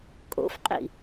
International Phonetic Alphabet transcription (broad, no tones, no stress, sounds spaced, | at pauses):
kʼ o̰ f qʼ ḭ